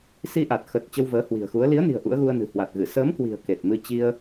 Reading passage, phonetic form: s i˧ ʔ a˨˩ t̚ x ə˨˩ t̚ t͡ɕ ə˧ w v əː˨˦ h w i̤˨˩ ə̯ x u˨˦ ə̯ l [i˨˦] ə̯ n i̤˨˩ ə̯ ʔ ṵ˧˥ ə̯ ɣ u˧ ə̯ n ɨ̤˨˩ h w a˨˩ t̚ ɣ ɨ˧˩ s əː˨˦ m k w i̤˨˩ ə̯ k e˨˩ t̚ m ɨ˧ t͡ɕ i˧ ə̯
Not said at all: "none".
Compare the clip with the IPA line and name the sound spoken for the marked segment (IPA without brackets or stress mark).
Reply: i˨˦